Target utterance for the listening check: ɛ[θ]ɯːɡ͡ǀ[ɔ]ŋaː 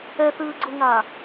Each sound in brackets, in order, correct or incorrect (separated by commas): correct, incorrect